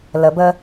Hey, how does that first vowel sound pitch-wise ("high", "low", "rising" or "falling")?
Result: low